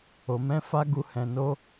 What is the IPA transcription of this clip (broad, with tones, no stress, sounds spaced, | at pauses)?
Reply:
o˨ m ɛ̃˧ f a˧ ɡ u˨ h ɛ̃˨ n o˧